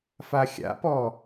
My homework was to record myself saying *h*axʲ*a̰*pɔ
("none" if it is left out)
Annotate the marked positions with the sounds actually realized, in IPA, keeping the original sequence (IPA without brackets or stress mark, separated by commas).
f, a̰